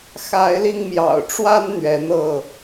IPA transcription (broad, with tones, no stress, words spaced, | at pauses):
xa˨˦ɪ̯li˧ŋmjɑ̰˨˩ʊ̯ʈ͡ʂwa˦n n̪ɥɛ˨˦n̪ɤ˥˨